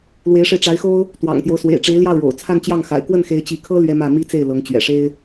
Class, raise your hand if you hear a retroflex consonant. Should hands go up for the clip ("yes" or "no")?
yes